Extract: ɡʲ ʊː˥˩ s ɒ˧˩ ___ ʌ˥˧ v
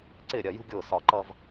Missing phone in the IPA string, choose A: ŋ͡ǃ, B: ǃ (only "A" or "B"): B